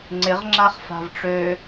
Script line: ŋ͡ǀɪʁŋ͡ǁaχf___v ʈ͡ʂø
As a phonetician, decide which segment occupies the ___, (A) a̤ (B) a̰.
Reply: A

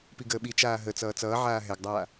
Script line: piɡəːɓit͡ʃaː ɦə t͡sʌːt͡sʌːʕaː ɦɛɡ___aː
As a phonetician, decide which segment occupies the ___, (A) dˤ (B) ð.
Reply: A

